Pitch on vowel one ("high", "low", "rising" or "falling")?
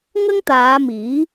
high